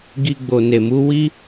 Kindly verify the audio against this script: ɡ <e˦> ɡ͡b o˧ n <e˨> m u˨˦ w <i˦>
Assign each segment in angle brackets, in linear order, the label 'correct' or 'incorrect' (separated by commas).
incorrect, correct, correct